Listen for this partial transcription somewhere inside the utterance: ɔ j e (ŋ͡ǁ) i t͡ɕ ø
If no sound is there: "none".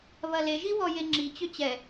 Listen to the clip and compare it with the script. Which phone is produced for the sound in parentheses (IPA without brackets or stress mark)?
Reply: ŋ͡ǁ